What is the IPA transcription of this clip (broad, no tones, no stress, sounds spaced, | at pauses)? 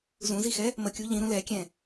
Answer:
z ũ z i x ɛ | m ə kʲ u ʎ ĩ ɾ ũ l ɛ kʲ ɛ̃